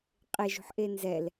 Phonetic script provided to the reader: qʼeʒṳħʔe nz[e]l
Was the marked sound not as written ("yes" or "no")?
yes